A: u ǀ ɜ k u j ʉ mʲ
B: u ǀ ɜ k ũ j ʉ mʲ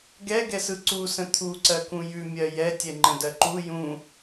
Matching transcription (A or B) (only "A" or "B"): B